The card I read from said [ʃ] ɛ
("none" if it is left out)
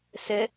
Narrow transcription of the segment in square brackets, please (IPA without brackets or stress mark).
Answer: s